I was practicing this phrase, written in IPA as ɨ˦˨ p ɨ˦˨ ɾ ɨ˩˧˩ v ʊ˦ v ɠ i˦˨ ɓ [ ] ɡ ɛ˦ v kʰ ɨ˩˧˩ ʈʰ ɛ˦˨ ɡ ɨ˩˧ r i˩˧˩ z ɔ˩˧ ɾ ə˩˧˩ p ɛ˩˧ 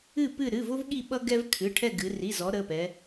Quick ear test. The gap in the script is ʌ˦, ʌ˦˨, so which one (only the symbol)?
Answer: ʌ˦